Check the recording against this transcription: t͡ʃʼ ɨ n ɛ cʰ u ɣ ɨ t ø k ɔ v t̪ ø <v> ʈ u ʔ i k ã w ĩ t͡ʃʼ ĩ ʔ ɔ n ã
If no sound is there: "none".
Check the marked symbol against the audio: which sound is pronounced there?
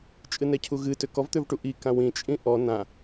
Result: v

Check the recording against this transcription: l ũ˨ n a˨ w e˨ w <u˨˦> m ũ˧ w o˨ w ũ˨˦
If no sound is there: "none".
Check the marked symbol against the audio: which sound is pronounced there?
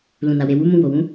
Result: u˨˦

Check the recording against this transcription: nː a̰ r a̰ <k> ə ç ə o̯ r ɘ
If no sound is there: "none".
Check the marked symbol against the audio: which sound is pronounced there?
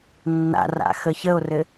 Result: x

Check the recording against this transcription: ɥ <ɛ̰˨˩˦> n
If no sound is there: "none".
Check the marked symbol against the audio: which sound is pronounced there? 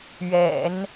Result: ɛ̰˨˩˦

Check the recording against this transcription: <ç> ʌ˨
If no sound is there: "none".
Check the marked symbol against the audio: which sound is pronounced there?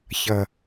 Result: ç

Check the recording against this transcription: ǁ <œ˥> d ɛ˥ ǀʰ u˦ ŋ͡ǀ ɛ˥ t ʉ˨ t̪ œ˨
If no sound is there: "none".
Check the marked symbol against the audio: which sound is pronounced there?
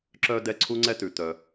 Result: œ˥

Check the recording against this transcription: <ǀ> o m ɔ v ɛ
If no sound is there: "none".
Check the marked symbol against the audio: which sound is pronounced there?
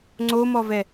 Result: ŋ͡ǀ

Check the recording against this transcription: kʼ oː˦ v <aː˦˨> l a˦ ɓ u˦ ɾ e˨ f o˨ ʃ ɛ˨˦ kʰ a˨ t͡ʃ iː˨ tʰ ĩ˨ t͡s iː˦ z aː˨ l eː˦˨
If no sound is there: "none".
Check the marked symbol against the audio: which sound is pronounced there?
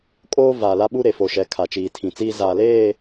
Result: aː˨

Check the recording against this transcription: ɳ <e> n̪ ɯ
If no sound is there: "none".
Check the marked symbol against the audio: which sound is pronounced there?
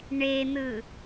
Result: e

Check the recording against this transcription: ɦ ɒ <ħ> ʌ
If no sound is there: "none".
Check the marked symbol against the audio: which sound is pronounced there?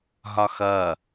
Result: x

